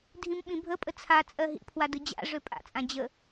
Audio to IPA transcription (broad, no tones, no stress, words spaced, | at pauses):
dʱĩmɓĩbʱə pʼət͡sʰat͡sʼɜ ɦḭpʰwadɯ d͡ʑa̰ʐø pʼa̰t͡sʼã d͡ʑə